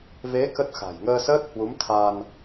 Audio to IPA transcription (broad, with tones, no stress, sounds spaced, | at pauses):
v e˨˦ k ə˦˥ t̚ x a̤˨˩ j ŋ əː˧ s əː˦˥ t̚ h w u˨˦ m t̪ʰ a˧ n